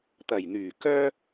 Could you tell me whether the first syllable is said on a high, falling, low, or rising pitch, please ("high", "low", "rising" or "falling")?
low